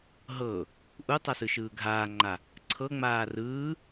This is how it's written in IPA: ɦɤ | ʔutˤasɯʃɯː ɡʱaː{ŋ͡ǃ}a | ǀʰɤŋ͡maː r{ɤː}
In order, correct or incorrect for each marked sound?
correct, incorrect

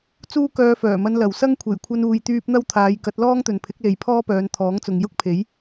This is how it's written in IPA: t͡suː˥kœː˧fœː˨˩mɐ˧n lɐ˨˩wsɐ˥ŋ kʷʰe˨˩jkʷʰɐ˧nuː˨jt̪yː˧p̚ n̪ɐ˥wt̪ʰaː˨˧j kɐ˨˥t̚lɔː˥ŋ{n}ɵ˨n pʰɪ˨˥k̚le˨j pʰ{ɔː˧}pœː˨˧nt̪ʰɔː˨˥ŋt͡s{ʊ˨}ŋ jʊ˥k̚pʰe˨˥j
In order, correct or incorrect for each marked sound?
incorrect, incorrect, correct

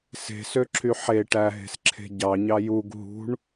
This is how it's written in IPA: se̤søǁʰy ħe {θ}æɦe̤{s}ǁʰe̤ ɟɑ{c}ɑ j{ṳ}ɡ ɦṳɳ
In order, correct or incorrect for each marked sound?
incorrect, correct, incorrect, incorrect

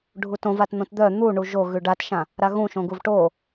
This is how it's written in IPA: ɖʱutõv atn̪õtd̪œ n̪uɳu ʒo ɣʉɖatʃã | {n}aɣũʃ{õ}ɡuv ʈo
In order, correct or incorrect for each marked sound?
incorrect, correct

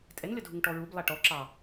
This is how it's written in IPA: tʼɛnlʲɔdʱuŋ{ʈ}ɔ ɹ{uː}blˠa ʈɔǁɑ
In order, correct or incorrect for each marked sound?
correct, incorrect

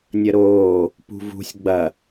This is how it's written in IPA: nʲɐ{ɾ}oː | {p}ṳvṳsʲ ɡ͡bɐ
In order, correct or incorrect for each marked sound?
correct, correct

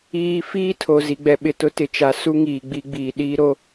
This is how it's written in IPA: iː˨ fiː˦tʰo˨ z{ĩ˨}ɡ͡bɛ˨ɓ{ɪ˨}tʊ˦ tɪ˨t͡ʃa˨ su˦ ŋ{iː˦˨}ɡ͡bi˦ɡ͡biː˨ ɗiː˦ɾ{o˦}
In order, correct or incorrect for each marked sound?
incorrect, correct, incorrect, correct

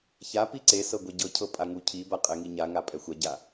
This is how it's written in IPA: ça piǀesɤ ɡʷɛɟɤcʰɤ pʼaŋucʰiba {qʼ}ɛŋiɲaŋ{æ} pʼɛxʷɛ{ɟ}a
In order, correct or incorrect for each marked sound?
correct, incorrect, correct

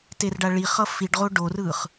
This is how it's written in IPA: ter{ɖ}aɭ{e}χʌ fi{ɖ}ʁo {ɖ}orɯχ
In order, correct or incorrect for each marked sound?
correct, incorrect, correct, correct

